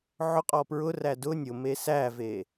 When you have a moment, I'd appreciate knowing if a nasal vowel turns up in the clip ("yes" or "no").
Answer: no